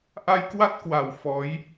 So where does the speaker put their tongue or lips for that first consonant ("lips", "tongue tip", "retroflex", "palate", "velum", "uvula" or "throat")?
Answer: throat